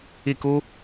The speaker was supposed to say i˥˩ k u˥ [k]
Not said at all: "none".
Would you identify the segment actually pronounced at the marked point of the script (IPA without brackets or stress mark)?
none